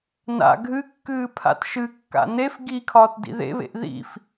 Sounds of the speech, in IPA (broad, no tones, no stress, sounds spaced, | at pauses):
n a̰ ɡʱ ɨ kː ɨː pʰ a̰ t ʃ ɨ kː a̰ n e f ɡ i kʰ ɒː t d ḭ ð ḛ β ḛ ʔ ð ḭ f